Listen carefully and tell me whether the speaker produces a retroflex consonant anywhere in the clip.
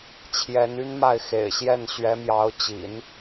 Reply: no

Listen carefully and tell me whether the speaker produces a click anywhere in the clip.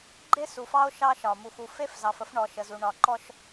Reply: yes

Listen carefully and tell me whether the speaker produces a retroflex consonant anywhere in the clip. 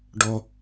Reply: yes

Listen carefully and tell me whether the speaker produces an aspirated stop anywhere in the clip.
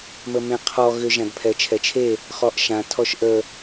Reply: yes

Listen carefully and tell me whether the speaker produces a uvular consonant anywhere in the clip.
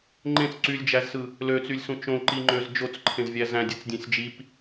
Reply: no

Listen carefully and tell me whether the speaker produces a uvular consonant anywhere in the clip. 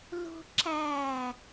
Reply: no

